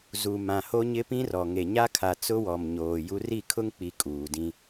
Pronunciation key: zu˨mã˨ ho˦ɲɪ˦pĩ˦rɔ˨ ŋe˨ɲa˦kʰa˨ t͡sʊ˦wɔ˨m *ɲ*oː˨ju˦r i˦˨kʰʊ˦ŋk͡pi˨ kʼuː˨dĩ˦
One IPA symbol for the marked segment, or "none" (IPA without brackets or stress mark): ɲ